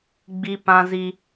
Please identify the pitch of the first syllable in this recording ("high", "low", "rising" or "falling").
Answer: high